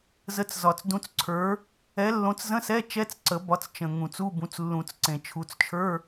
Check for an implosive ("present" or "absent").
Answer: absent